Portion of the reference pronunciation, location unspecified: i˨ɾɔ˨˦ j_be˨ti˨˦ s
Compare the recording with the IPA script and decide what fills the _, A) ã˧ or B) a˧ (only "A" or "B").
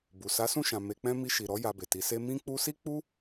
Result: B